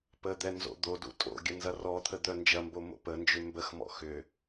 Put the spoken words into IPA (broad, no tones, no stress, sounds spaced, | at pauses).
p ə d̪ ɛ n z o̰ d̪ o d ṵ tʼ o̰ ɡʲ ə n z ɐ r ɔ t̪ʰ ə d̪ œ n d͡ʒ ɐ m b o m o̰ p ə n d͡ʒ ʏ m b ə x m ɔ̰ x ʏ